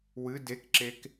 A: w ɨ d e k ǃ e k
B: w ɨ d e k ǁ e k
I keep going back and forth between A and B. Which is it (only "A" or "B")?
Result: B